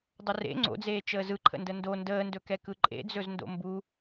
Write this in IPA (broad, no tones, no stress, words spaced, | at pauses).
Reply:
dˤərḛ ŋ͡ǀo̰d͡zeː t͡ʃəːzɯǃʰə̰ndə ndo ndəːndɵkɛ kɯǃʼḛd͡zɵz ndo̰mbu